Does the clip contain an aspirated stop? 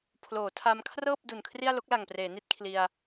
yes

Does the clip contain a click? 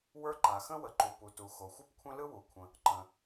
yes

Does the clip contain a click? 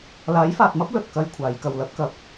no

